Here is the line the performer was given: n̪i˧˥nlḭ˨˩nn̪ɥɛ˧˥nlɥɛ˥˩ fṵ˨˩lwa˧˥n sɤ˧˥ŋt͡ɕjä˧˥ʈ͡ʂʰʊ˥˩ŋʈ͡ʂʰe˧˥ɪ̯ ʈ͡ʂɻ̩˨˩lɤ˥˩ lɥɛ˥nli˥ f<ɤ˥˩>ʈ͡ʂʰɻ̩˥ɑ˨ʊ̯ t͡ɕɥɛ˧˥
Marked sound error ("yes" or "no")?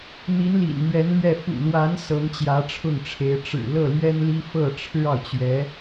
no